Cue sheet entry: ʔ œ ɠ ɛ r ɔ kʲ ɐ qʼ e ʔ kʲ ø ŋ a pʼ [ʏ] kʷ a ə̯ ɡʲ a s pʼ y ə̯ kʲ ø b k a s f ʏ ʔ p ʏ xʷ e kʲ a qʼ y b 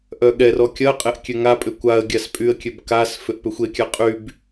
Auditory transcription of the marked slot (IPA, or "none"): ʏ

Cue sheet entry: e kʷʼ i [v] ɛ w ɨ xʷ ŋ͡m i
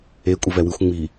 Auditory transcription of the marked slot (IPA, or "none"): v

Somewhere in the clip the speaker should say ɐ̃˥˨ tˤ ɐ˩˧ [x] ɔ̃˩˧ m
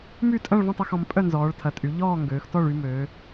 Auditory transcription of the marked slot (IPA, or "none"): x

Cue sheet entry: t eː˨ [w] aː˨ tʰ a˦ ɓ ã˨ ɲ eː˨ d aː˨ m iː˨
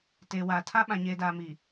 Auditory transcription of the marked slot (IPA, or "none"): w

